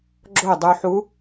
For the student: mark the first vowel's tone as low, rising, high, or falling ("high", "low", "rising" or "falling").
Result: falling